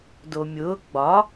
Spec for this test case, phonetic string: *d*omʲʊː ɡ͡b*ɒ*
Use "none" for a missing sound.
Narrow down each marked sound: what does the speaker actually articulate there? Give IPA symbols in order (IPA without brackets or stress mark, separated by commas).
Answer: d, ɒ